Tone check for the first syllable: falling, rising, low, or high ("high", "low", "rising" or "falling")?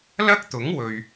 high